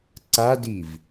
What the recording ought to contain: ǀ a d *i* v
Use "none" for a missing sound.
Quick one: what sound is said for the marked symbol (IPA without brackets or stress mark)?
i